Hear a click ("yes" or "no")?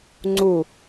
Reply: yes